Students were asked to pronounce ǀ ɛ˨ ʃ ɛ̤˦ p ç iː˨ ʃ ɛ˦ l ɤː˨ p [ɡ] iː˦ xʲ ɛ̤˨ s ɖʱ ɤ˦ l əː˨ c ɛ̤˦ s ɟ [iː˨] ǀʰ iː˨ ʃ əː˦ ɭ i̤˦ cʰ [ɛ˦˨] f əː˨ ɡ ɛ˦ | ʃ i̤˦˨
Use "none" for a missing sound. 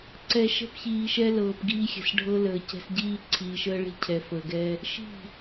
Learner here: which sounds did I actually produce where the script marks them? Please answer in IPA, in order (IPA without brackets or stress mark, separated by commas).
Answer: ɡ, iː˦, ɛ˨